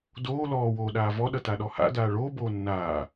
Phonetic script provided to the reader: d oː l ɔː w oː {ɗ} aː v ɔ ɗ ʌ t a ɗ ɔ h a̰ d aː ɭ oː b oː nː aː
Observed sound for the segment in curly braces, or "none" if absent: ɗ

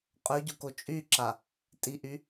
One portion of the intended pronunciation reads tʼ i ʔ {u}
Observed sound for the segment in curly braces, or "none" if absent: y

